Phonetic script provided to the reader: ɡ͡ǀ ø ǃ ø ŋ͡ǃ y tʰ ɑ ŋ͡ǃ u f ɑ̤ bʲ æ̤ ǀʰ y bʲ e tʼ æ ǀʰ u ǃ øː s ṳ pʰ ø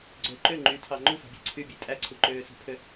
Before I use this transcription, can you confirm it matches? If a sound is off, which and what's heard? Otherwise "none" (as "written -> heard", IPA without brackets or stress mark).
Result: none